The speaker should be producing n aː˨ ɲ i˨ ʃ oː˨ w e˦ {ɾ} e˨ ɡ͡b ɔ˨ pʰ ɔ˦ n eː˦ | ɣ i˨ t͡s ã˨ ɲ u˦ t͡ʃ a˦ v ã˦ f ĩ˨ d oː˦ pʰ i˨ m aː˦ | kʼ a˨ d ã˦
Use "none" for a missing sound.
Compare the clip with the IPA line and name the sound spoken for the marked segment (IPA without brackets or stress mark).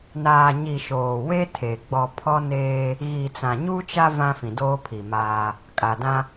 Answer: tʰ